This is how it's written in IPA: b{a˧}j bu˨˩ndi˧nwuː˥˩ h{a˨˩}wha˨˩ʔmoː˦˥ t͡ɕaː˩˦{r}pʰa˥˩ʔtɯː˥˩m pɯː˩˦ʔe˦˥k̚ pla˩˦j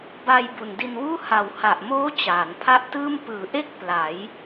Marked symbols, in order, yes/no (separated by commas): yes, no, no